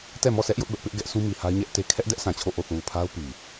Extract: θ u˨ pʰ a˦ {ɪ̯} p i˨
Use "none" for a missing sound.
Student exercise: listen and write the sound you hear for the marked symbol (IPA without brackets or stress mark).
ʊ̯